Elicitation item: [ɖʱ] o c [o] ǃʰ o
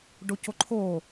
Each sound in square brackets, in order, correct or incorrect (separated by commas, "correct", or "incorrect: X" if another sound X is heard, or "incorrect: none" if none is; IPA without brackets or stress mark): incorrect: ɖ, correct